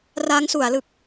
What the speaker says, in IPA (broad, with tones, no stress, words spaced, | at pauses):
ra˦˥ŋsu˩˦a̯lɯ˨˩k̚